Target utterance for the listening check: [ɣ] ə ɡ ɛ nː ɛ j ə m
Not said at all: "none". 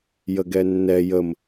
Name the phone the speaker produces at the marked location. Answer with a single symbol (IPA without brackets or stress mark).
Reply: j